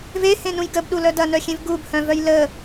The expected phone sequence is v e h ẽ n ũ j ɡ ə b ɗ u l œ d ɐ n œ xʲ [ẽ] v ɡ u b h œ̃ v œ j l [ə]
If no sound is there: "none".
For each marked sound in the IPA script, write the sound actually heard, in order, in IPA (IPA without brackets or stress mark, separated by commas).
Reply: ẽ, ə